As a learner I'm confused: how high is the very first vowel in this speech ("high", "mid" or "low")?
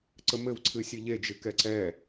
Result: mid